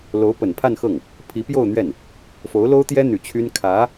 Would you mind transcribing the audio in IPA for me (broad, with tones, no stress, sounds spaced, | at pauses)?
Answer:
l o˧˥ ʊ̯ p ə˨˩ n pʰ a˥˧ n x ɤ˥˩ ŋ | pʰ i˧˥ p j o˥˧ ʊ̯ n̪ ɥ ɛ˥˩ n | f o˧˥ ʊ̯ l o˥ ʊ̯ t̪ j ɛ˥ n̪ y˨˩ t͡ɕʰ y˥ n kʰ ä˧˥